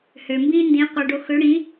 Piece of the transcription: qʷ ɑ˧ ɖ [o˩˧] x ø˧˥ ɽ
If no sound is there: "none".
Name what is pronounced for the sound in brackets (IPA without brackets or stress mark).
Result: o˧